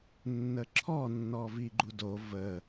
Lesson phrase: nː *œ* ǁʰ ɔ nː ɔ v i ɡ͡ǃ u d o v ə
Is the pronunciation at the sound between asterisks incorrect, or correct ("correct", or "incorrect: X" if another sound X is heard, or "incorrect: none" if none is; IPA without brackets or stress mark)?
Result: incorrect: ə